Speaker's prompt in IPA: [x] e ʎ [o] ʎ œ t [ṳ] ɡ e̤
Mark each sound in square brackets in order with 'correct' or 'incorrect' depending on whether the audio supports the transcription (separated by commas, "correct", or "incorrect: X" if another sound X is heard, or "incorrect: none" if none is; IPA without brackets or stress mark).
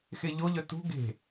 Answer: correct, correct, correct